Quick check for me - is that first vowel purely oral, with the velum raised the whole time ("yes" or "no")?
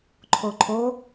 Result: yes